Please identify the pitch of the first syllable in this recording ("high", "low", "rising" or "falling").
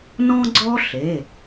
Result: high